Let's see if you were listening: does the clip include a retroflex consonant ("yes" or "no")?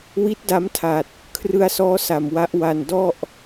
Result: no